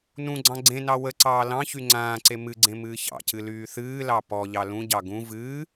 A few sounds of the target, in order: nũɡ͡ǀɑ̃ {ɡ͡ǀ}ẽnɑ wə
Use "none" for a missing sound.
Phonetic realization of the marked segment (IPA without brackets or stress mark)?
ɡ͡ǀ